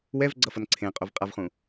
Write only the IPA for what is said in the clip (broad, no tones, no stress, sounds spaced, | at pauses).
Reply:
w ɛ v ɡ͡ǀ ʌ f ʌ n ǀʰ ẽ qʼ o v qʼ a v χ ũ